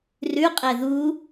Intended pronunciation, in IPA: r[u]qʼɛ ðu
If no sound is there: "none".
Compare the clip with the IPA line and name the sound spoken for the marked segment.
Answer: ʉ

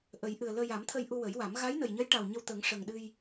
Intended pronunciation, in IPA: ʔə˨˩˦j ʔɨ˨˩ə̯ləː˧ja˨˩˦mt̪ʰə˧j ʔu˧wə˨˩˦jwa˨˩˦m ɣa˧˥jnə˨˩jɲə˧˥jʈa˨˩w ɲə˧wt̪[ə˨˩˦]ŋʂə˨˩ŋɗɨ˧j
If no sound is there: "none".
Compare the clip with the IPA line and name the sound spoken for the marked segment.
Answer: ə˨˩˦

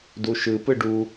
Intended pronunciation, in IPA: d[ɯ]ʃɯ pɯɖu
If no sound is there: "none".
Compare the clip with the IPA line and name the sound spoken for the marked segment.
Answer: u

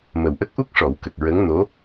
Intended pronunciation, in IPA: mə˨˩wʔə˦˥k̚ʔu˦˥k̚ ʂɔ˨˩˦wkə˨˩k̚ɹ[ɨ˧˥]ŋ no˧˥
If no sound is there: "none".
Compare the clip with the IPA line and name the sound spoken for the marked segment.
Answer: ə˧˥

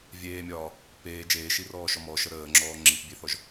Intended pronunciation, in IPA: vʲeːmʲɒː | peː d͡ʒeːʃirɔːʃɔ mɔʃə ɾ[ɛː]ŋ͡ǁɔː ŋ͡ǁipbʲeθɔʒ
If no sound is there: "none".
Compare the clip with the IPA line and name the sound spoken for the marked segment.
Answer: əː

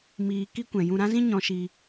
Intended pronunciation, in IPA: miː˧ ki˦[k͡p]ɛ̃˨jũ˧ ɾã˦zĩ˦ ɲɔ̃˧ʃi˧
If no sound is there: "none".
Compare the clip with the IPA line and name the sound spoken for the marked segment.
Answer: kʷ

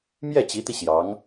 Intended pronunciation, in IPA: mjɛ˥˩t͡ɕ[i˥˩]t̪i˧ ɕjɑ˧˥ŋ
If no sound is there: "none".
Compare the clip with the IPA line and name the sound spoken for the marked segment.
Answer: i˧˥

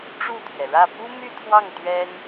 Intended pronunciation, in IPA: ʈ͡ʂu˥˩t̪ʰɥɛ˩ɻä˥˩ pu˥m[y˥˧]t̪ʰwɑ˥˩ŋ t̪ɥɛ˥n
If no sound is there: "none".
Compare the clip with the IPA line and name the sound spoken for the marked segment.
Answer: y˥˧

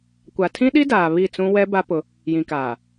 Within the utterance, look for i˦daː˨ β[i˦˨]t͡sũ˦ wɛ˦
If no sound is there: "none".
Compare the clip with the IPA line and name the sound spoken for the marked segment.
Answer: i˦˨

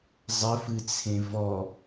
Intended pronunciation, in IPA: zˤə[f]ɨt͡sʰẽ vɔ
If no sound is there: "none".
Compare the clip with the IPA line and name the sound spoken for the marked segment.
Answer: f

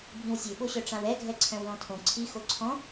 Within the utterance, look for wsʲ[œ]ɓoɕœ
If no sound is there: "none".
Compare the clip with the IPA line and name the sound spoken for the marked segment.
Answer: ø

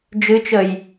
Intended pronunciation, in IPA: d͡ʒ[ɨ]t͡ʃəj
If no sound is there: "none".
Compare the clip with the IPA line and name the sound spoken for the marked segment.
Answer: ɨ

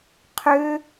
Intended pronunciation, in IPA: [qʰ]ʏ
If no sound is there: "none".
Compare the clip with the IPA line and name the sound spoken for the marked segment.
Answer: qʰ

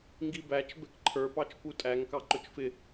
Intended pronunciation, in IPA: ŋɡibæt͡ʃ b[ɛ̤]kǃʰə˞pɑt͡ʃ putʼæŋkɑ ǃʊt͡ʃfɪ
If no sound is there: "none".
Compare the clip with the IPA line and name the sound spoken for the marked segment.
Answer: ɛ̤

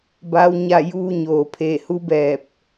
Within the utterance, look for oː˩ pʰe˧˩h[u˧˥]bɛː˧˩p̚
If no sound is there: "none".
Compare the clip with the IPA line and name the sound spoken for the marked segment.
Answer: u˧˥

